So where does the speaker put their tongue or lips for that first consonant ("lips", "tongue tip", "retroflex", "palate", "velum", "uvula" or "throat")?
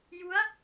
palate